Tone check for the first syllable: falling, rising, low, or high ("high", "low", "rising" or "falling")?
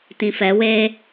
low